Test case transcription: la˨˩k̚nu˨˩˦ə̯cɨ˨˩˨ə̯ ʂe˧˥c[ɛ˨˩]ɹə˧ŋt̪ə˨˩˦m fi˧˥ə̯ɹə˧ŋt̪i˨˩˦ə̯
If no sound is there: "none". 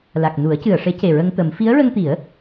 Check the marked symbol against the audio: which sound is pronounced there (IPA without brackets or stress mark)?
e˨˩